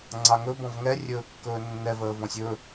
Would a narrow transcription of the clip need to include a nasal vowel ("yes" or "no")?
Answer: yes